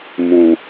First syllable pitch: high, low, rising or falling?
low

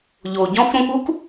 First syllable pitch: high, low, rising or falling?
low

